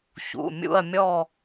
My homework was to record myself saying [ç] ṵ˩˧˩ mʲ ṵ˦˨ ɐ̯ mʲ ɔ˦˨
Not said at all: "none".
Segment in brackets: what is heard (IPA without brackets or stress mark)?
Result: ç